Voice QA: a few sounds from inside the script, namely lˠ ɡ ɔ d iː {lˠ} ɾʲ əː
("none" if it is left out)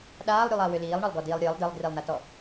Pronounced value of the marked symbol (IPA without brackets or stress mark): lˠ